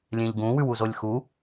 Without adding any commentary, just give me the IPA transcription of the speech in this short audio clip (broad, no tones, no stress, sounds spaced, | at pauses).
lʲ ẽ ʎ ɡ ũ w ʉ w u z o lʲ x u